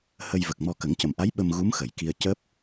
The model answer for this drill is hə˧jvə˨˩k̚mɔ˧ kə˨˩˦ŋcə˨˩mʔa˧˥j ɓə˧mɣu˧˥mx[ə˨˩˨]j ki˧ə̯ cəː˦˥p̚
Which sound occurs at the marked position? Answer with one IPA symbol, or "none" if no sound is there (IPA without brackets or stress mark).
ə˨˩˨